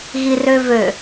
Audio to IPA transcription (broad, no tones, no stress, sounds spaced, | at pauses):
ɣ i r ø v ø